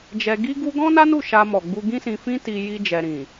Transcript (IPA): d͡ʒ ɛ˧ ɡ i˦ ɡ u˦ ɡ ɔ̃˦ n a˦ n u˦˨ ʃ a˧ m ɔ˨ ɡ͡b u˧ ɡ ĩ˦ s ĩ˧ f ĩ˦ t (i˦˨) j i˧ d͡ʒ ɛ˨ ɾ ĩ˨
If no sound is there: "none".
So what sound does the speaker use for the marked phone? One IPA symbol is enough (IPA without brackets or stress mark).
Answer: i˧